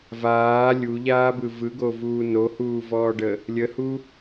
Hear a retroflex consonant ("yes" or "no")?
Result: yes